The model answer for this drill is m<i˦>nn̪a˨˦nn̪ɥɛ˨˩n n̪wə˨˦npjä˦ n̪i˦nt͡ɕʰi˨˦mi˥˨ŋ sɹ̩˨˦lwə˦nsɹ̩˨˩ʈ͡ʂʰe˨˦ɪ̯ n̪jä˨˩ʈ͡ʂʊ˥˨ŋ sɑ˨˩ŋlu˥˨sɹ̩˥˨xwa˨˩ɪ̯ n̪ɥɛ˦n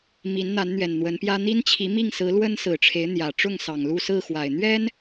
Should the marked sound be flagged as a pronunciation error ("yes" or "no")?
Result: yes